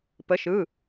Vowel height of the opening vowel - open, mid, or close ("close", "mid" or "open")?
mid